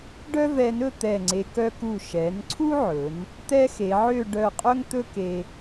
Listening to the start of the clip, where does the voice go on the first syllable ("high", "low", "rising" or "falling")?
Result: high